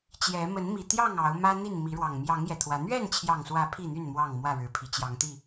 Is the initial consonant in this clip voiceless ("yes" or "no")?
yes